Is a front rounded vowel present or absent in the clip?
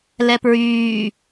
present